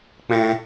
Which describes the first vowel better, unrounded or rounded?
unrounded